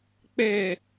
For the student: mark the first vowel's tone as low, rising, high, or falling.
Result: falling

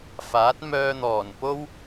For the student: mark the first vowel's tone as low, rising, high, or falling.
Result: rising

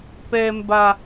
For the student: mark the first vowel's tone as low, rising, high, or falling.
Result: high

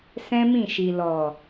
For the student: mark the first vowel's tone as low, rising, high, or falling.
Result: high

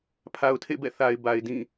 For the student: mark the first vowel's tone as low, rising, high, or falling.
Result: low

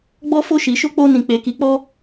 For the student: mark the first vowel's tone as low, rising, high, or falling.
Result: high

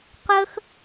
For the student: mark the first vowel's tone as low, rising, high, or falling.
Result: high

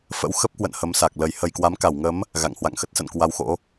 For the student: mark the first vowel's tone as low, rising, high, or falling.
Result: rising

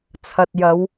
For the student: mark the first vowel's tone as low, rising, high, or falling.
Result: low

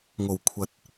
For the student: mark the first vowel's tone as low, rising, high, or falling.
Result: low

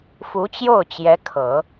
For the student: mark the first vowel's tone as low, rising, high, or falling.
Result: rising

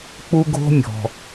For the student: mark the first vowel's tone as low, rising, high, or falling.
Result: high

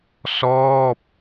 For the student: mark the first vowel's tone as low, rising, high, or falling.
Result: falling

